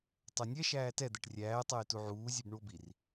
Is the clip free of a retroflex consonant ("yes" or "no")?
no